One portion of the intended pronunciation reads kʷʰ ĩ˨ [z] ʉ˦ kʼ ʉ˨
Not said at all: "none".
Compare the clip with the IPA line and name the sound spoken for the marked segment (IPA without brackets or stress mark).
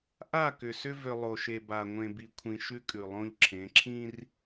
ʃ